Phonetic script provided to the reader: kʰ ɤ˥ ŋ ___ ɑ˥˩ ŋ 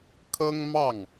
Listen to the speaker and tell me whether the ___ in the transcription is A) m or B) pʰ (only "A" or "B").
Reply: A